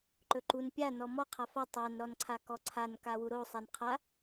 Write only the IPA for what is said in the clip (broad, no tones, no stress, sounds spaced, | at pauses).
ǃ ɵ ǃ u n pʲ a n ɔ m ɔ qʰ a f a tˤ a n ɾ ɔ n ǀʰ a k ɔ ǀʰ a n k a w u ɾ o sˤ a n qʰ a